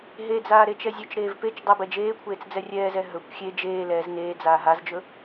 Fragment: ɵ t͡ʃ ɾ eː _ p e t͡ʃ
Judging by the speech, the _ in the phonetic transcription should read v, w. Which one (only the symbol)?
v